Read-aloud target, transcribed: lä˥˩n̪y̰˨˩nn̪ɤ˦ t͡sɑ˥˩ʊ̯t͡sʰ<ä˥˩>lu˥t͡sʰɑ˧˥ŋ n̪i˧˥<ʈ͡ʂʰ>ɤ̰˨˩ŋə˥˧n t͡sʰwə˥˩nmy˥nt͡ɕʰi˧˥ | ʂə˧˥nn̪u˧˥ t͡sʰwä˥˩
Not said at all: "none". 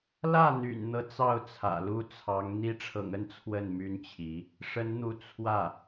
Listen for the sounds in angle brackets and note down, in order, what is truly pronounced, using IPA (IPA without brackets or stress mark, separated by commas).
ä̰˨˩, ʈ͡ʂʰ